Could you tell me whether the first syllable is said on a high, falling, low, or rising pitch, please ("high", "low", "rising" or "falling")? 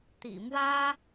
low